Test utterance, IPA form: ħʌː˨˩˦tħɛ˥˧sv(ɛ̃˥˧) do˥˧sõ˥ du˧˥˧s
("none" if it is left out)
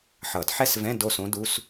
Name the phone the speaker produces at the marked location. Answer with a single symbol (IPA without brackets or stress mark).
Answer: ɛ̃˧˥˧